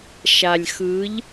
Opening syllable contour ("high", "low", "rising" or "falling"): low